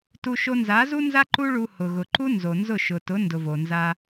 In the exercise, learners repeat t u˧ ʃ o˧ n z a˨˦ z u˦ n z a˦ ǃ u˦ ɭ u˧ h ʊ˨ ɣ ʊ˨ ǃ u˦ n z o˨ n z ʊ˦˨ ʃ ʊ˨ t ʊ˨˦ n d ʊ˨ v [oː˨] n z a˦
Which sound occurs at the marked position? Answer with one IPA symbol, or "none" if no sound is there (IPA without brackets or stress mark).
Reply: o˨